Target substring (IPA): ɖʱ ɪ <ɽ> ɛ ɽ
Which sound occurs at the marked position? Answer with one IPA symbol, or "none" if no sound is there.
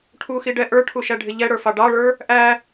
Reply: ʎ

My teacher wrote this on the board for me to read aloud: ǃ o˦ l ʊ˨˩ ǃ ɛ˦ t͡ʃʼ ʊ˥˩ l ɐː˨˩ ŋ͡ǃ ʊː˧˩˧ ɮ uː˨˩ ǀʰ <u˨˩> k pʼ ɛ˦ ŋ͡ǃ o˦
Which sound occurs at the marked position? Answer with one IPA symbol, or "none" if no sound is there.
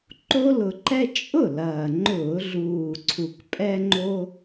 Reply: u˨˩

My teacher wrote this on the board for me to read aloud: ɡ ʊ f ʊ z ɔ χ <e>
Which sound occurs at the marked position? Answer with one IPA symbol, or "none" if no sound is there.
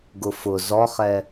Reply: ɛ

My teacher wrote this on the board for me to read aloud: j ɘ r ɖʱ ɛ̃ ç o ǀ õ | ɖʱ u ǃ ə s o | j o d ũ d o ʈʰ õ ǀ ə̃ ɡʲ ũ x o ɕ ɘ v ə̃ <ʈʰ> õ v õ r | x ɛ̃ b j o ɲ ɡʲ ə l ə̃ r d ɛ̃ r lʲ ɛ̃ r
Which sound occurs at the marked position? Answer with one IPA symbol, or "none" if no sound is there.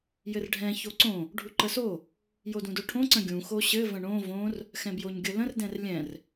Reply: ɳ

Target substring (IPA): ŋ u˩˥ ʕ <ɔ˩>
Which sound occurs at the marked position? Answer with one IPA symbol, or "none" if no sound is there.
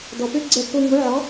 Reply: ɔ˩˥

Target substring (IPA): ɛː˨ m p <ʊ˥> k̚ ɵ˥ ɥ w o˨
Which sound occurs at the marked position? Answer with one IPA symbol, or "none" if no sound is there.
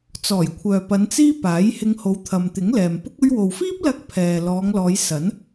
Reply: ʊ˥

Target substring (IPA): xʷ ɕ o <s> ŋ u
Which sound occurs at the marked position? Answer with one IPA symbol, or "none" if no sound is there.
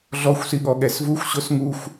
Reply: s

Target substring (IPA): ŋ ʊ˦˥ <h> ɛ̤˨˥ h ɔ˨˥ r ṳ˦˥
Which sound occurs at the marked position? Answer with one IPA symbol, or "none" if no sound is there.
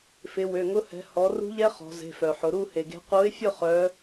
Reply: h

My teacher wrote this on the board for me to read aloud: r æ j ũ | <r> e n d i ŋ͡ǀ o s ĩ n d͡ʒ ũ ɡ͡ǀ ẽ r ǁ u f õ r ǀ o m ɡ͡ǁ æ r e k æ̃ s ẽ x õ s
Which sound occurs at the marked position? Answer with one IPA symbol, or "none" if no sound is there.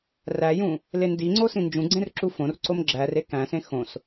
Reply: l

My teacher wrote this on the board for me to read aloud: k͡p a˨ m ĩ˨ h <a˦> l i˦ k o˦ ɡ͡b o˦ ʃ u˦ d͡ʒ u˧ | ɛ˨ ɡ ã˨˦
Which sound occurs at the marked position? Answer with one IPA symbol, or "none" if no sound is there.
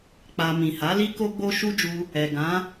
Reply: a˨˦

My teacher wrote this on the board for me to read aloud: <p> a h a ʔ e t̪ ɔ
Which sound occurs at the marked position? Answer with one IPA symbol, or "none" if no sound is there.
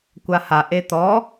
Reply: kʷ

